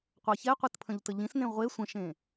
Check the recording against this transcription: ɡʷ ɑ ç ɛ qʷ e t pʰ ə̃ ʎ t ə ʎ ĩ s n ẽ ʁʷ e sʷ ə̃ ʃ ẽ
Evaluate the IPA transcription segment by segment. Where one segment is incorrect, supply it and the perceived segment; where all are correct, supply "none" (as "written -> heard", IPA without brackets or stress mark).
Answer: ɡʷ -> qʷ